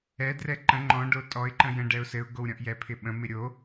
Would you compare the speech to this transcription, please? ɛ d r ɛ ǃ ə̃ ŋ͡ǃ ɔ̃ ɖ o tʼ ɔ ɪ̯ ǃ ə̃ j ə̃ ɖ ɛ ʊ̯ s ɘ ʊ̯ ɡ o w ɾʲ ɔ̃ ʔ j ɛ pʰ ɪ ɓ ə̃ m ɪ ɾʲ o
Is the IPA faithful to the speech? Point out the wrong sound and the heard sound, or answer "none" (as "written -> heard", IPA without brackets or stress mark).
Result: none